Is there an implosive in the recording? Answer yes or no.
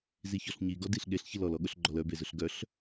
yes